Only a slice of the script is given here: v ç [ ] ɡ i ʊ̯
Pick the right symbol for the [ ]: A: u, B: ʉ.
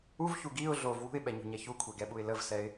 A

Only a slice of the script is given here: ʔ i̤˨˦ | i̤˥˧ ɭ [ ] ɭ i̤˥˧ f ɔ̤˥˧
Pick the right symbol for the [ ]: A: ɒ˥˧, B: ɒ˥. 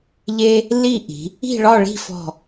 A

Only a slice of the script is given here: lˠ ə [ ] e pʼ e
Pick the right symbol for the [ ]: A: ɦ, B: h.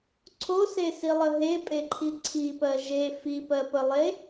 A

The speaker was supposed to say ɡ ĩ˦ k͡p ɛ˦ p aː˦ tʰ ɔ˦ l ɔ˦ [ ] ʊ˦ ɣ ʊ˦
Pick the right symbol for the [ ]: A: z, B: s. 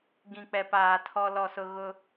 B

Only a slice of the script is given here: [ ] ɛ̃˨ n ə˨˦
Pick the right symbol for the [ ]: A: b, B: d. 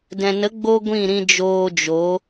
B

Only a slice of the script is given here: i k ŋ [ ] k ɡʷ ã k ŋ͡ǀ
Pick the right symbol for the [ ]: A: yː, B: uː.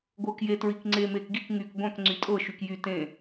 A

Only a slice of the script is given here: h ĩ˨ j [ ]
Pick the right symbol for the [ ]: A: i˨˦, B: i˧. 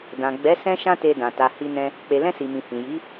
A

